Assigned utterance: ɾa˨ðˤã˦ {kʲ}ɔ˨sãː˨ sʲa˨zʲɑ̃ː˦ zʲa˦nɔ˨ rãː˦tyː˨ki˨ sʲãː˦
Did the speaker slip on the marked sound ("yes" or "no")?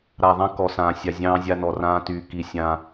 yes